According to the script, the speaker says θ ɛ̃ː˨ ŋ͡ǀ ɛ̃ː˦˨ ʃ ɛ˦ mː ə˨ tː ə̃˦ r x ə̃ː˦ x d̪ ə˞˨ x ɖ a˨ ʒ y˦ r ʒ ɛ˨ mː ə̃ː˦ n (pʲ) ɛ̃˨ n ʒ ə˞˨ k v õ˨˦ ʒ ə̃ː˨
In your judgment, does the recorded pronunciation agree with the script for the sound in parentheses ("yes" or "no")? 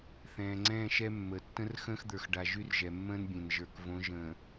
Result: no